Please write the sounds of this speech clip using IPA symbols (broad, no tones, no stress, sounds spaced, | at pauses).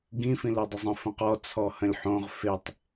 ɡ ĩ f ĩ l o dˤ ə zˤ ə̃ f ə̃ q ɔ t͡sʰ ɔ h ə̃ lʲ ħ õ ʁ f e tˤ